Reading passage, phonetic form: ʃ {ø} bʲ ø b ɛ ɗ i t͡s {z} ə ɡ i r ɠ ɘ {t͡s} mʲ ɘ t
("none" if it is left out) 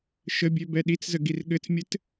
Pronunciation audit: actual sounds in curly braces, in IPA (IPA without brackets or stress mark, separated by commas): ə, z, t͡s